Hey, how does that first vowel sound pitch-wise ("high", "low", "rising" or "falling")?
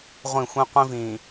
falling